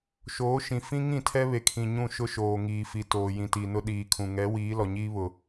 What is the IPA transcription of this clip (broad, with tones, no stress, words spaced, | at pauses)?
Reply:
ʃoː˨˦ʃĩ˨ fĩ˦ ŋĩ˦˨tʰɛ˦βe˨kʰĩ˨ ɲũ˦˨ʃʊ˦ʃoː˨ ŋiː˨fi˨ toː˨jĩ˨ti˨nʊ˦ ɗiː˨kʰũ˨ ŋɛ˨˦wiː˨˦ lɔ˨ɲiː˦βʊ˨